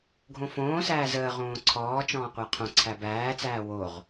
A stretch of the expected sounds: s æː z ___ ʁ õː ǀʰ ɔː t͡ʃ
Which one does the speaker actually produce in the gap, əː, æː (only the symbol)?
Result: əː